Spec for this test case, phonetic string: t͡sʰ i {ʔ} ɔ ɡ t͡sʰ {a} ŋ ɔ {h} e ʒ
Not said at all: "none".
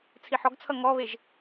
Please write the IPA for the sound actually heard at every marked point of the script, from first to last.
ħ, ʌ, β

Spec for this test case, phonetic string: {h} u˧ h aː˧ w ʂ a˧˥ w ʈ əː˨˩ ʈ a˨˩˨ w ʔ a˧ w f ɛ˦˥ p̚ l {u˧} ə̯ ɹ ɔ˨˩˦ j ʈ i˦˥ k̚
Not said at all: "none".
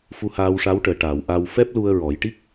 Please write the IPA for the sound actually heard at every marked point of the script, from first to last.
f, u˧

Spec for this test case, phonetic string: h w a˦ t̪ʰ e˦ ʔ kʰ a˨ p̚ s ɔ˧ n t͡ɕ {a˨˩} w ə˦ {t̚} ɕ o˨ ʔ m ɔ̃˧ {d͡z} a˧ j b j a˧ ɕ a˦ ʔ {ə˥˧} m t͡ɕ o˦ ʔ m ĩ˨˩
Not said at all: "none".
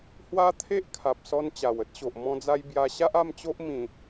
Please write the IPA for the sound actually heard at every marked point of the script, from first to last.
a˨˩, t̚, d͡z, a˥˧

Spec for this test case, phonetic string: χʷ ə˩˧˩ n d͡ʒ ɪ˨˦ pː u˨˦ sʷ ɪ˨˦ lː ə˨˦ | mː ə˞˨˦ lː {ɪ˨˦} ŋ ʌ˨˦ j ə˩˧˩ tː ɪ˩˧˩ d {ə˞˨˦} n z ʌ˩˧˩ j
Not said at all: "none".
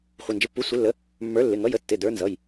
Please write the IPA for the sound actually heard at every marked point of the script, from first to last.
ɪ˩˧˩, ə˞˨˦

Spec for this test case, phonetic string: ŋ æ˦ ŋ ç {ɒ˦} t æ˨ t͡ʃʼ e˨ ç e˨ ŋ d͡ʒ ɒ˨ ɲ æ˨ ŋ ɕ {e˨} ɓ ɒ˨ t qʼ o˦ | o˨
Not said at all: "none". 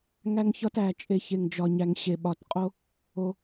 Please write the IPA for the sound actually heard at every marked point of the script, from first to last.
ɒ˦, e˨

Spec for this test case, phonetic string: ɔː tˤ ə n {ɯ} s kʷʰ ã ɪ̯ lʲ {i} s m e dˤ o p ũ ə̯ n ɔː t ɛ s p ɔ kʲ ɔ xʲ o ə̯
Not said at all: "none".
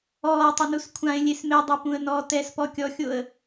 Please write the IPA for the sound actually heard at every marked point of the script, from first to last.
u, e

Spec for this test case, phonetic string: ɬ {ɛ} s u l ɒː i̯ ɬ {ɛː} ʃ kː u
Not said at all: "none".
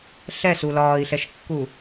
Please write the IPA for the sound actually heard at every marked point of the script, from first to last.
ɛ, ɛ

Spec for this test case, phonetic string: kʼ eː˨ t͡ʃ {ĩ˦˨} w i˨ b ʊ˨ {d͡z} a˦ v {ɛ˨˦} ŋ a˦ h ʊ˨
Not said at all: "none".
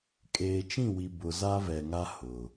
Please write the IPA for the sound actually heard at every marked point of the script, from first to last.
ĩ˦˨, z, ɛ˨

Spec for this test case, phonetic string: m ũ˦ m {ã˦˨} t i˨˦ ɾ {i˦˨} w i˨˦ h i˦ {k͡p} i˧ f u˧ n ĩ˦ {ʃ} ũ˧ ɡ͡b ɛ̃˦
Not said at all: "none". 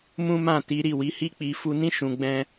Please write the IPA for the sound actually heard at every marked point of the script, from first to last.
ã˦˨, i˦˨, k͡p, ʃ

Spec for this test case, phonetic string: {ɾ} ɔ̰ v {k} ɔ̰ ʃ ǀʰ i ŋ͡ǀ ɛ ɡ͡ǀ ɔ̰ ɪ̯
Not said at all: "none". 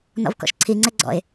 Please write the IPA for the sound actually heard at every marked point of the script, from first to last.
n, k

